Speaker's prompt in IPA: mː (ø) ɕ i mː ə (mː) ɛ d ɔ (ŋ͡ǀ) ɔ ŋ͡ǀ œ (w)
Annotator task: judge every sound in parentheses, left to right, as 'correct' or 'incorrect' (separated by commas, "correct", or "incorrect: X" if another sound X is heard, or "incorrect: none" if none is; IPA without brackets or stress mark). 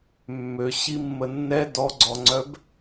correct, incorrect: nː, incorrect: ɡ͡ǀ, incorrect: b